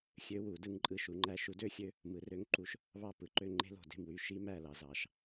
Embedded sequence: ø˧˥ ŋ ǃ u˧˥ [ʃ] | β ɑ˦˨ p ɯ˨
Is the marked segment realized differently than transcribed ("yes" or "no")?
no